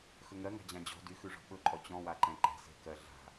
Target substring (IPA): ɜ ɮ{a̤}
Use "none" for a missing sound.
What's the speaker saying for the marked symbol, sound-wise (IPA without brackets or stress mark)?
a̤